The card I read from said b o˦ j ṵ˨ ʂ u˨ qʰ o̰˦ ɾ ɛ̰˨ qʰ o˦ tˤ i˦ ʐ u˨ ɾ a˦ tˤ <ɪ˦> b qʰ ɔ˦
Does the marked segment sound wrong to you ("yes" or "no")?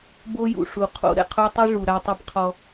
no